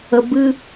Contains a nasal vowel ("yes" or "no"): no